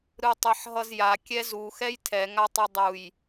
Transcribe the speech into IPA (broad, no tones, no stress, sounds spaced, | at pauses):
ɾ ɯ tˤ e ħ ɦ ʌ z j a kʲ ɛ z u x ɛ j tʰ ɛ ŋ a tˤ i dˤ u j